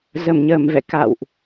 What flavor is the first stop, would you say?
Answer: plain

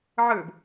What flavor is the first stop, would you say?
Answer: plain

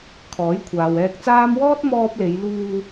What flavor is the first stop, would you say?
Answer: aspirated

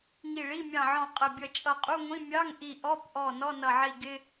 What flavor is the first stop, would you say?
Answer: ejective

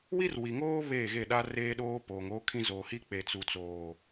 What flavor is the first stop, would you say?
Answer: implosive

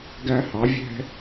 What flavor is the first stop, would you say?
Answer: plain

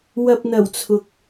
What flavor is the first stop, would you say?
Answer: plain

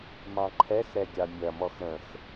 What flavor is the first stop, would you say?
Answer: click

